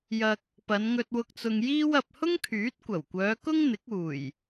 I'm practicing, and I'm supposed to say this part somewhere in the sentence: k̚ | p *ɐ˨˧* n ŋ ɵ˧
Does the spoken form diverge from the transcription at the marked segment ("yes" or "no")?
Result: no